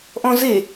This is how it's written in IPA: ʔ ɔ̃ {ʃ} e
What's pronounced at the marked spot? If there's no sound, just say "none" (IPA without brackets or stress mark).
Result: z